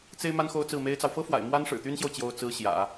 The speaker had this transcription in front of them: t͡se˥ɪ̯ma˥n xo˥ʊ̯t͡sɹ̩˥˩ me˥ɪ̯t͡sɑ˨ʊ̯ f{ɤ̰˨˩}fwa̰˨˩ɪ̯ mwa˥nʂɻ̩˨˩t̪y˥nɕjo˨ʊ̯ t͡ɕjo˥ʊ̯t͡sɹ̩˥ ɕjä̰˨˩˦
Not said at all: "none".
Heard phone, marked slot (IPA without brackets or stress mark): ɤ˥